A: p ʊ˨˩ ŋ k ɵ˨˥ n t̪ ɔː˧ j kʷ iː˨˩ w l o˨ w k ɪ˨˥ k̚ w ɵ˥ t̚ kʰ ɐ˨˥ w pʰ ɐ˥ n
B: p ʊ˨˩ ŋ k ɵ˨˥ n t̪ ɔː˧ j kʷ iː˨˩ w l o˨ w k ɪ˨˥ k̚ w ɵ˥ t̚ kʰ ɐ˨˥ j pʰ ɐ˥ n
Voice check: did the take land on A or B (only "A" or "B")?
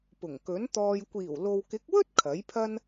B